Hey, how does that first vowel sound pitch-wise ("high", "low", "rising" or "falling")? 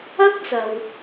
high